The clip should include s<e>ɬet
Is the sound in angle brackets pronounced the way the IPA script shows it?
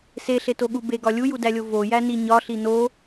yes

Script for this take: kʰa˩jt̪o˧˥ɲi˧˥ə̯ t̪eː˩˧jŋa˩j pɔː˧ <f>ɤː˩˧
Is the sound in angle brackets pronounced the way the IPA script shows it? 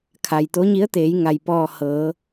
no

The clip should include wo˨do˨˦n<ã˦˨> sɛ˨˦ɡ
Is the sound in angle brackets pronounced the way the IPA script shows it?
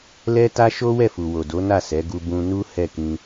no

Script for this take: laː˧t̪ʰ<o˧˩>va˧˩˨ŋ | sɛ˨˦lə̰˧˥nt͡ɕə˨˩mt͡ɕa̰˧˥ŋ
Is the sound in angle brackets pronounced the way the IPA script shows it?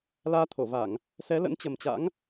yes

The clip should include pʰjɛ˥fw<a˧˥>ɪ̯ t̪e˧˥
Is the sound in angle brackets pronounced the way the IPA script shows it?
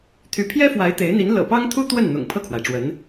yes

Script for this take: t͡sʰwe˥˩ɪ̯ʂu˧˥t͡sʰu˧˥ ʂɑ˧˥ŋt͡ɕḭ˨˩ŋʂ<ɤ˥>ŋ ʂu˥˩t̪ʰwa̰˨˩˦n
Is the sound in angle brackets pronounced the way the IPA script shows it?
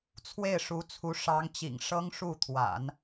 yes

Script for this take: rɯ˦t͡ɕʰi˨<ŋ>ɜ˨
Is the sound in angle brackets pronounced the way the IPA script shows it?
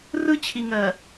yes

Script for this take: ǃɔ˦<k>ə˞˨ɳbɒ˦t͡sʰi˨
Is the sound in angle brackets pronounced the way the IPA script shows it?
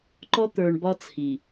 no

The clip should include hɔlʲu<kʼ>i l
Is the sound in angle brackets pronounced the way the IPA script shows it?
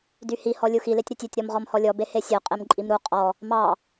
no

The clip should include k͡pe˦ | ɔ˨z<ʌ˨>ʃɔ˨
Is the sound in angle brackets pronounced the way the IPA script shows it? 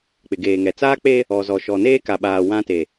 no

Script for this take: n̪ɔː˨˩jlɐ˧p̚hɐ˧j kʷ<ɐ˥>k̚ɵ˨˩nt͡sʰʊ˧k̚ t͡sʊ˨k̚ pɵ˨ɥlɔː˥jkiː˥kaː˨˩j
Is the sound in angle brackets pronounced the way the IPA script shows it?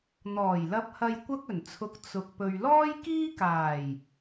yes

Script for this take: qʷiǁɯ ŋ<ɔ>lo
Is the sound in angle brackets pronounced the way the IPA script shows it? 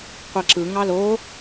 no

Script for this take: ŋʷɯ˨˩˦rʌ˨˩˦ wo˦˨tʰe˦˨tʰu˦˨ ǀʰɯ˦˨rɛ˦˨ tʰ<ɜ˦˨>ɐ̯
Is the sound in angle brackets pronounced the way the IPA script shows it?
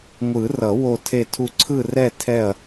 no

